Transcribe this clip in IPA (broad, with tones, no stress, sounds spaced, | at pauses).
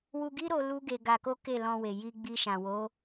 w u˧ ɡ i˦ ɾ o˧ l u˦ ɡ e˧ ɡ a˧ k o˦ k e˦˨ l ɔ̃˧ w e˨ j i˧ ɡ͡b i˧ ʃ ã˨ w o˨˦